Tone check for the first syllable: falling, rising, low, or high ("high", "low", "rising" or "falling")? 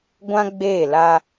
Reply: high